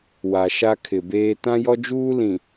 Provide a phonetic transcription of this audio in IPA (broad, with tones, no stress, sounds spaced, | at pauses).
w a˨ ʃ a˦ kʰ ɪ˨ b eː˦ t ã˦ j ɔ˦ d͡ʒ uː˦ l ĩ˨